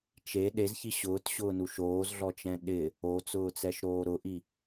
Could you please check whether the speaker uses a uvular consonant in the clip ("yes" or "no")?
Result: no